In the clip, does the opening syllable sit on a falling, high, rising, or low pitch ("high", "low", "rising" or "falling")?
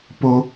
high